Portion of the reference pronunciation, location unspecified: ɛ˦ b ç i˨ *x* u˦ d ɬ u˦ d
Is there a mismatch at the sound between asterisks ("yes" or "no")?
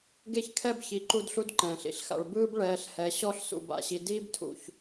yes